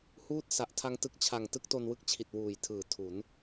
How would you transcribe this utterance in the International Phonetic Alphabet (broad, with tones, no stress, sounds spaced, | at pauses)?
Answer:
h uː˥˩ t̚ s a˨˩ ʔ tʰ a˦˥ ŋ t ɯ˨˩ k̚ t͡ɕʰ a˨˩ ŋ t ɯ˦˥ k̚ t o˧ n w ɯ˦˥ k̚ t͡ɕʰ i˨˩ t̚ w uː˨˩ j tʰ ɯː˨˩ tʰ u˩˦ n